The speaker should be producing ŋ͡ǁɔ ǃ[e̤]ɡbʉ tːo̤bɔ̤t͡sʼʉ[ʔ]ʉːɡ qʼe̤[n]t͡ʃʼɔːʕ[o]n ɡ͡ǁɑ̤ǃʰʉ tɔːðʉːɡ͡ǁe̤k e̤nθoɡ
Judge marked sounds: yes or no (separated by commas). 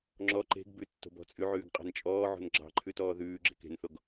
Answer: yes, no, yes, no